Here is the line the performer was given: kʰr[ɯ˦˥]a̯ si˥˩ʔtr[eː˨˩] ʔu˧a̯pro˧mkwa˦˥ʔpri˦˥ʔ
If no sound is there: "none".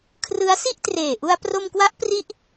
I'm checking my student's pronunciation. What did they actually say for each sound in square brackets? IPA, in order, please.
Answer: ɯ˦˥, eː˨˩

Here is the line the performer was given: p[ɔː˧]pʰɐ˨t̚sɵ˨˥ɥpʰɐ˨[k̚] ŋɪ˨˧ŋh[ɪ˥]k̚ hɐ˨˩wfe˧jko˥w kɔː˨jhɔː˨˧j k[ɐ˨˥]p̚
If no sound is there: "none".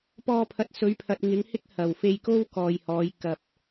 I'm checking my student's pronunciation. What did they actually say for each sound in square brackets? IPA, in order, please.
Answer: ɔː˧, t̚, ɪ˥, ɐ˨

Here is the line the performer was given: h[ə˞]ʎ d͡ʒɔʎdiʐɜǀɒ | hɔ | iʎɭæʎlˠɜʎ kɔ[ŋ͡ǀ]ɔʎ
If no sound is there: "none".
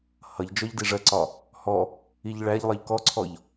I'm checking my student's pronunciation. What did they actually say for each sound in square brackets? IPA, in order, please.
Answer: ʌ, ǀʰ

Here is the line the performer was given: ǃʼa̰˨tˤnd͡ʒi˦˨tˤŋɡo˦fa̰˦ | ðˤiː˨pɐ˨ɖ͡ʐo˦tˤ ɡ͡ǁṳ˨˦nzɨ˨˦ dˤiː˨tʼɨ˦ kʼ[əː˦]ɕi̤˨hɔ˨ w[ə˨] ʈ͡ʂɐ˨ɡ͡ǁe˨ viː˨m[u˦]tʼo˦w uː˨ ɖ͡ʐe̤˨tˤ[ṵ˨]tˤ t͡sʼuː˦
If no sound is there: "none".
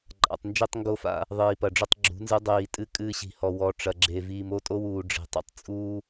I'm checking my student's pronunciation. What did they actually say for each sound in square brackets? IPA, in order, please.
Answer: ɨː˦, ɔ˨, o˦, ṵ˨

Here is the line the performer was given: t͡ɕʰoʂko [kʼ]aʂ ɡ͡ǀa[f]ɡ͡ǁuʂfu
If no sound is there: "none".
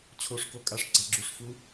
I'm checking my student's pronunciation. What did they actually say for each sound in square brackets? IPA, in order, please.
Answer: kʼ, none

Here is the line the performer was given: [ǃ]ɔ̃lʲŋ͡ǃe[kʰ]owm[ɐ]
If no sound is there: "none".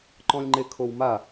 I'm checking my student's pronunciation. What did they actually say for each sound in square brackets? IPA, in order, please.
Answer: ǃ, kʰ, a

